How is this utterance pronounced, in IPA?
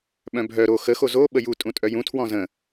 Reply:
ɓ œ̃ bʱ œ ɾ o x ə x o z o ɓ ə j u tʼ ũ tʼ œ j ũ tʰ w ɔ̃ z ə̃

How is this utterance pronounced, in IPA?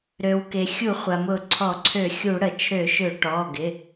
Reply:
ɾ ø˩ w k e˩ xʲ u˧˩˧ χʷ a˩ m ʊ˧˩˧ ǀʰ ɔ˧˩˧ ǀʰ ø˧˩˧ xʲ u˧˩˧ ɽ ə˩ t͡ʃʰ ø˧˩˧ ʃ ø˧˩˧ ʈ ɔ˩˧˩ ɡ ɪ˩˧˩

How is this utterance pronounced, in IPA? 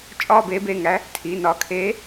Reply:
t͡ʃʼ ɒː˥˧ b eː˨˥ b e˩˧˩ ŋ æ˨˥ | tʰ iː˩˧˩ n ɒː˨˥ kʰ eː˨˥

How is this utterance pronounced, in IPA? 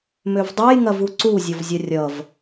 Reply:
m ø v dˤ ɐ j ŋ ɐ v u ǀ u zʲ ɔ v zʲ ɐ rʲ ʌ v

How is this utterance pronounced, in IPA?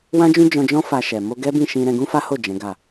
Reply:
w ã˦ d͡ʒ ũ˦ d͡ʒ ɔ̃˧ d͡ʒ ɔ̃˦ f a˧ ʃ ɛ˨ m o˧ ɡ ɛ˦ b ĩ˦˨ ʃ ĩ˧ ɾ ɛ̃˧ ɡ ũ˦ f a˦ h o˦˨ d͡ʒ ɛ̃˨˦ ɡ a˦˨

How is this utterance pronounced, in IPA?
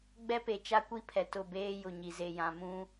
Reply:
ɡ͡b ɛ˦ p e˨ t͡ʃ a˦ kʷ i˦ pʰ ɛ˨ t ʊ˦˨ b eː˦ j ʊ˨ ɲ i˨ z e˨ j ã˨ m ũ˦

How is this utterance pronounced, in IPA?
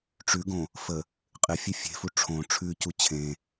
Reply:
ʈ͡ʂ ʉ ɡ õ | f ə | qʼ ɪ fʲ e fʲ e̤ f u ʈ͡ʂʰ õ ʈ͡ʂʰ ʉ c u t͡ɕʰ ẽ

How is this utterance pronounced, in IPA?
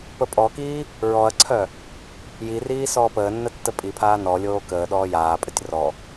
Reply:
p ə pʼ ɔ k iː | ɹ ɔ ɐ̯ ǀʰ œ | j i r iː s ɔː p əː nː ə tː ə pʼ i pʰ aː n ɔ lʲ oː k əː ɗ ɔː j aː pʼ ə tʲ r ɔ

